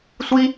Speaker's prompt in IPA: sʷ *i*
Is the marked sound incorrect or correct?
correct